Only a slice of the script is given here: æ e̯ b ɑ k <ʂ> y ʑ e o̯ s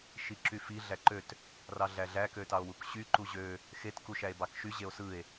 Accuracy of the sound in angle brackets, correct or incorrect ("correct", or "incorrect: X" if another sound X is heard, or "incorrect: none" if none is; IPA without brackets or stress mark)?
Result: incorrect: ʃ